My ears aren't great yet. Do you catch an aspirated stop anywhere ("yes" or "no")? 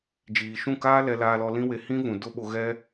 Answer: no